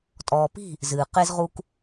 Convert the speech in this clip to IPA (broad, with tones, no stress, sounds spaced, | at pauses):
tʼ ɔː˨ p i̤˦˨ | z ɨː˨ q e˦ z ʁ u˦ k